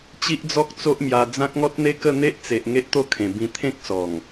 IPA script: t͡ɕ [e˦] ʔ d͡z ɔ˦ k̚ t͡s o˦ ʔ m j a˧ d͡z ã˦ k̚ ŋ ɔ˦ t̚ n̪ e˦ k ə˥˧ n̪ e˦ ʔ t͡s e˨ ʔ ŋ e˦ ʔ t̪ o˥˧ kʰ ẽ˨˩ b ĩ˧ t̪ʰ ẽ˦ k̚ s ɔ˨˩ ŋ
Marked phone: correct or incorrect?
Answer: incorrect